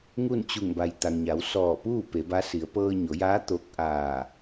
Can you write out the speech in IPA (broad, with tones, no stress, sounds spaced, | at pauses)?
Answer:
ŋ u˥˨ n t͡ɕ u˧˩ ŋ b a˩ j t̪ a˩ ŋ ɲ a˩˧ w s ɔː˧˩ p uː˥˨ p e˩˧ b a˧˥ s i˩˧ ə̯ p ɤː˧ ɲ o˩˧ j aː˧˥ t̪ o˧˥ k̚ ʔ aː˧˩